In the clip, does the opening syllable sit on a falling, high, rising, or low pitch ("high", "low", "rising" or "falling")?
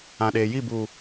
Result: low